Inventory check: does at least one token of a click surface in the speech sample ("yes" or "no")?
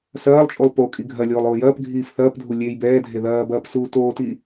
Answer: no